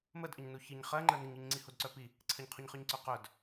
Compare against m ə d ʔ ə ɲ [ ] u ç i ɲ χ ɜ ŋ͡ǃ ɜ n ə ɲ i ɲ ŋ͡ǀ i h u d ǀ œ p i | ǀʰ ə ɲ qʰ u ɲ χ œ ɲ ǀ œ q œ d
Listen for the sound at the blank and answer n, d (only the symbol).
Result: n